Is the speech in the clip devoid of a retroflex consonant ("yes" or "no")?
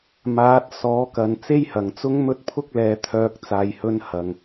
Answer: yes